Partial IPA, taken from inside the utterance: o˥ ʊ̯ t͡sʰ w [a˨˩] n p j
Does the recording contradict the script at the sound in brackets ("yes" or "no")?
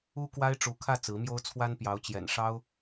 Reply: yes